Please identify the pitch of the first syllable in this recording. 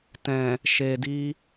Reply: low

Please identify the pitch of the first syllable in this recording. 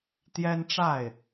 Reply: high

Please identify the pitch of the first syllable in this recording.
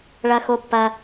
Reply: high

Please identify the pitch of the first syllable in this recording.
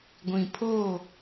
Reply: low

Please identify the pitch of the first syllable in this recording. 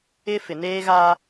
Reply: high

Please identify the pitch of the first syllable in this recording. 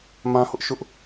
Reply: high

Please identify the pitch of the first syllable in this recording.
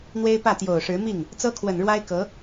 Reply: high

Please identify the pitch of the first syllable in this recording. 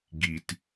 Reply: low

